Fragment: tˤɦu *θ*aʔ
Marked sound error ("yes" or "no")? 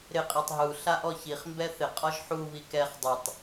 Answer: yes